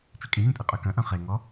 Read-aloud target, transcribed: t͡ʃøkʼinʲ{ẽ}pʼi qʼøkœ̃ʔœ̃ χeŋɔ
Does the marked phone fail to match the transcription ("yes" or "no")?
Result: no